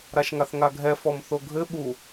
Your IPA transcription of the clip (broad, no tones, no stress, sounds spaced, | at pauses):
ɾ a ʃ ŋ a θ ŋ a ɡʱ ɛ f ɔ m θ o ɡʱ ɘ ɓ u